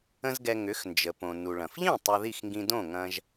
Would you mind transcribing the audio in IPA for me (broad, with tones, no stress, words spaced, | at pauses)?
ə̃˥zɡɛ˧ ŋʏ˩˥xnd͡ʒə˩põ˩ nu˩ɭɐ̃˩fʎĩ˥˩ tˤo˧ði˥˩xŋɡĩ˧ dõ˥˩ŋɐ̃˧ʒ